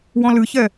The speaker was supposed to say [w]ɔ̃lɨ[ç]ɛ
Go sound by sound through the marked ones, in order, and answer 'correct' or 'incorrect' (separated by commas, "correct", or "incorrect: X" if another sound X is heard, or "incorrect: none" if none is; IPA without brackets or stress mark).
correct, correct